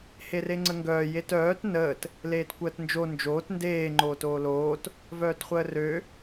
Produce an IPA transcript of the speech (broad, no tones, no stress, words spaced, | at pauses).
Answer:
hereŋ͡ǀəŋɡœː jetœːt nəːt | leːtkʷəːtnd͡ʒo nd͡ʒoːt ndeː ŋ͡ǃoːtoːloːt | vœːtχʷəːrø